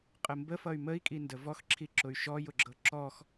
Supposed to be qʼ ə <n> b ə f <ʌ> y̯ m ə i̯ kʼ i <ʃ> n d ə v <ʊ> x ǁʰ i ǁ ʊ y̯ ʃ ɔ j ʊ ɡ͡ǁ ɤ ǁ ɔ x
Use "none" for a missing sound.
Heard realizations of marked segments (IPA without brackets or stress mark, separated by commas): m, ʌ, none, ɔ